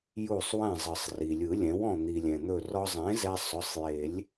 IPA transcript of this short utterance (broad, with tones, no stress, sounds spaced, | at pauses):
j u˧˩ sˤ w ɛ̃˧˩ zˤ ɯ˩ sˤ r i˩ lʲ ɯ˨˩˦ lʲ ɛ̃˩˥ w ɔ̃˧˩ n̪ i˩ lʲ ɛ̃˩ n̪ ɵ˧˩ r ɔ˧ zˤ ẽ˩˥ z ɛ˧ sˤ ʊ˩˧˩ sˤ j e˨˩˦ lʲ